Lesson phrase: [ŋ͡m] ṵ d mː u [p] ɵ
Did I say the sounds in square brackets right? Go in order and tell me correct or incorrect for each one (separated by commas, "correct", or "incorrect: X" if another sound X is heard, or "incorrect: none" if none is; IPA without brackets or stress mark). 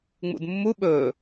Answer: correct, incorrect: ɓ